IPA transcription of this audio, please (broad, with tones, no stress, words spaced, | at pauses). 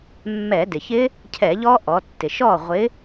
mːɛ˧˩˧dɪ˩çɪ˦˥ | cʰɛ˧˩˧ʎɔ˦˥ʔɔ˩˧tːɪ˩ ʃɔ˥˩ʁʷɪ˨˥